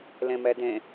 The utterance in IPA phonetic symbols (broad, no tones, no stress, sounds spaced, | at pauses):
l ẽ m ɛ d ẽ